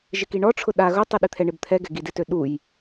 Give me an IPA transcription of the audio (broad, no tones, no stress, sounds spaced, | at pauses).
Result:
ʒ ɪ k i ɳ ɔ ʈ͡ʂʰ ʊ ɗ a ɣ ʊ tˤ i ɗ i t̪ʰ ɛ ɳ ɪ b t̪ʰ ɛ ɡ ɛ ɡ i d ɪ t ø ɗ u j